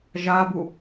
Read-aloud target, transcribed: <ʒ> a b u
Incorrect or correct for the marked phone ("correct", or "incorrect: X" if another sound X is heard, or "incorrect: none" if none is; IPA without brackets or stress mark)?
correct